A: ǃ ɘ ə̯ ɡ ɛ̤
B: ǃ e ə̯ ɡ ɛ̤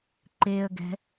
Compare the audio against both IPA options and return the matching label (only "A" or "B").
B